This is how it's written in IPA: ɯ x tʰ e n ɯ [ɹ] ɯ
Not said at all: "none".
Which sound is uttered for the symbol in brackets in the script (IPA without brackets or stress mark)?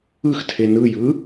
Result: j